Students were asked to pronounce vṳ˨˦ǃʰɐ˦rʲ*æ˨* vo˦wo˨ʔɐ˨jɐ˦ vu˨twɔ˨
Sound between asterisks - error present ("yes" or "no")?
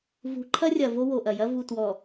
yes